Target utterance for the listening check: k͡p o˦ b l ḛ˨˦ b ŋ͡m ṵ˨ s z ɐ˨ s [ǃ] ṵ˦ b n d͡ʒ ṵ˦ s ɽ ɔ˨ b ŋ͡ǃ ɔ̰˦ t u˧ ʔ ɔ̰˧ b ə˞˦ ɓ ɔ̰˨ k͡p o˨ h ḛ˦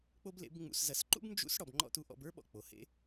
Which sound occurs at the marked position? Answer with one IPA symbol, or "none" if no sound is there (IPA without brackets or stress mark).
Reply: ǃ